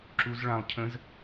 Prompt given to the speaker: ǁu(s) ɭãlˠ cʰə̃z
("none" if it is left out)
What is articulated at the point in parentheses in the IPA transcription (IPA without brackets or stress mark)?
z